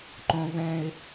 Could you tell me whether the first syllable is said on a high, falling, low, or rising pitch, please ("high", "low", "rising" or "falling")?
high